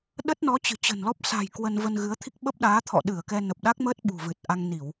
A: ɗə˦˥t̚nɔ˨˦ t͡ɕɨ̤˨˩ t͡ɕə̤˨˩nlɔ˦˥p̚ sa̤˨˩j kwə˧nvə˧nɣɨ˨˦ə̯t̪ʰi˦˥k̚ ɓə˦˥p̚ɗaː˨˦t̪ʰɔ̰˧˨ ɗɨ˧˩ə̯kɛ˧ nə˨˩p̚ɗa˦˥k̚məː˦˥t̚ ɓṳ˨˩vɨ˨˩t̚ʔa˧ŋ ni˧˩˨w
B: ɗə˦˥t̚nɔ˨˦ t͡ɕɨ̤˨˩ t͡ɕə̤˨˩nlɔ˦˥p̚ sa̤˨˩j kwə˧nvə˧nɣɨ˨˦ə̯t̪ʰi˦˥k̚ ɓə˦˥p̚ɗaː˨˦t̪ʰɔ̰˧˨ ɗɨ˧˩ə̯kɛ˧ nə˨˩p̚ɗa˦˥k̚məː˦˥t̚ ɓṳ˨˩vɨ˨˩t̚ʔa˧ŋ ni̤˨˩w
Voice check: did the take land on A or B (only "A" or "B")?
A